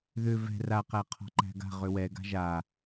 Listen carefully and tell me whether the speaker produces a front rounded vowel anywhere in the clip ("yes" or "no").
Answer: yes